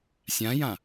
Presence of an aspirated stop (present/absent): absent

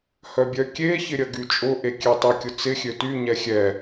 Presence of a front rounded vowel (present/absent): present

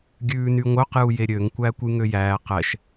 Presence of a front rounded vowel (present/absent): present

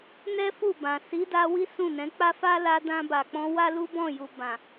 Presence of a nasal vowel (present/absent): present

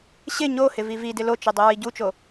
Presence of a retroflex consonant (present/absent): absent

